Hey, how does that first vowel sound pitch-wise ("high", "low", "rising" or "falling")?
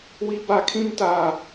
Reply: high